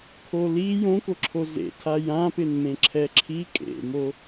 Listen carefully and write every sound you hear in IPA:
kʰ o l i j õ k o ǁʰ o z ḛ tʰ a j ã p ɪ n m ẽ ǁʰ ɛ ǁʰ i kʼ ḛ m o

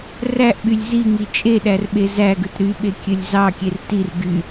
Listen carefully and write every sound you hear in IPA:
r æ ʔ ɓ y lʲ z i ŋ i t͡ʃʼ e ɗ æ r ɓ e z æ ɡ ɯ t ɾ y ɓ e kʲ ø lʲ z ɑ kʲ e r t i r ɡ y

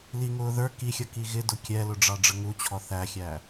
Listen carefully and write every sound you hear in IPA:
l i ŋ ʊː ð ə˞ k i xʲ ʌ k i ɣ ɪ d ʊ kʲ ɛ l ʊ ɖ͡ʐ ɑ ɖ͡ʐ ə ŋ u t͡ɕʰ ɔ θ æ xʲ æ

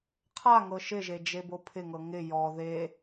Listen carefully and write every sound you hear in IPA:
qʰ a ŋ ɤ ʃ ɪ ʒ e d͡ʒ e b o pʰ ɪ ŋ ɤ ŋ ɪ j ɔ ð e

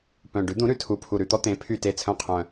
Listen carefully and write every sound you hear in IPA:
p œ̃˨˩ ɖ ʉ˩˥ d̪ ũ˩˥ ɾ ʉ˨˩ tʰ u˨˩ pʰ u˨˩ ɾ ʉ˦˨ t̪ ɔ˥ t̪ ẽ˩˥ pʰ y˦˨ t e˦˨ t͡sʰ œ̃˦˨ qʰ œ̃˨˩

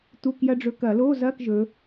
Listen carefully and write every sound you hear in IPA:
t̪ u˧˥˧ k j ɐ˥ ɖ͡ʐ ɵ˧˥˧ k ɐ˧˩˧ l o˧˥˧ z ɐ˧˥˧ k ʒ ɵ˨˦

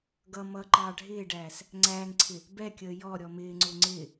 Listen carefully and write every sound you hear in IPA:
ɡ ʌ m ʌ ǃ ɑː ɖʱ ɪː ɖ æː s | ŋ͡ǀ æː ŋ ǀʰ ɪ | b ɛ kʲ əː j ɔ ɾʲ ɔ m ɪː ŋ͡ǀ ʊ ŋ͡ǀ ɪ

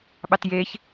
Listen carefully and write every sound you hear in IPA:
ɓ ɑ t j e ç

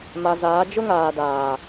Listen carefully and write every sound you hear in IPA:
m a˨ z aː˨˦ d͡ʒ ʊ˦ ŋ aː˨ d aː˨

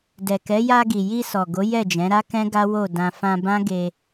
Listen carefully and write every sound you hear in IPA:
d ɛ˨ k ɛ˨˦ j a˧ ɡ i˨ j i˧ s ɔ˨ ɡ o˨˦ j ɛ˦˨ d͡ʒ ɛ̃˨˦ ɾ a˦ k ɛ̃˦ ɡ a˦ w o˦˨ d ã˧ f ã˧ b ã˦ ɡ e˧

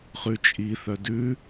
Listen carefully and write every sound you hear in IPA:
χ ʉ t͡ʃʼ i θ œ d ʉ

